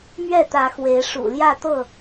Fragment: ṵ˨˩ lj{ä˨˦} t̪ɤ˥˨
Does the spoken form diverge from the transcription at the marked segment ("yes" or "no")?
yes